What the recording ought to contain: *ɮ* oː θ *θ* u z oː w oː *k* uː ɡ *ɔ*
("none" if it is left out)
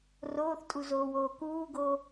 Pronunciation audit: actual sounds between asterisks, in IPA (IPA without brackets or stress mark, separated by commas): r, tʼ, k, o